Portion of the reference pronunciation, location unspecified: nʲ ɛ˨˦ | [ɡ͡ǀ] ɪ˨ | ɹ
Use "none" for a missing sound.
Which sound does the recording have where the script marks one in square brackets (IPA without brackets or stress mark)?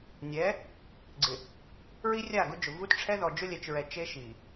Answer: ɡ͡ǀ